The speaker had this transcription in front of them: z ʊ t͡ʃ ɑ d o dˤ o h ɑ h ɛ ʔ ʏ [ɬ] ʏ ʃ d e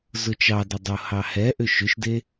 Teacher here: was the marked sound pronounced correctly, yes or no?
no